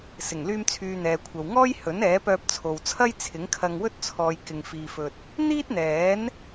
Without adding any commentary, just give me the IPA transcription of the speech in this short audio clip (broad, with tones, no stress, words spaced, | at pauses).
sɪ˨˩ŋ lyː˧mt͡sʰyː˨ n̪ɛː˨kʷʰɐ˨wŋɔː˥j hɵ˨˥n ɛː˨˥pœː˧p̚t͡sʰo˨wt͡sʰɐ˥j t͡sʰɪ˨˥ŋkʰɐ˧ŋwɵ˥t̚ t͡sʰɔː˨j kɪ˧ŋfiː˧fɵ˧t̚ | n̪iː˥t̚n̪ɛː˨˥n